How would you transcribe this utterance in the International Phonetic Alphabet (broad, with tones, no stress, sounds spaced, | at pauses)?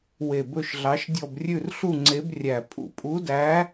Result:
w e˧˩ b ɵ˥˧ ʃ ɮ ɑ˧˥ ʃ dʲ ɔ˥˧ b rʲ ʉ˥˧ r ɬ u˥˧ ŋ͡ǀ e˧˥ b rʲ æ˧˩ pʼ ṵ˧˩ pʼ u˧˥ d æ˧˥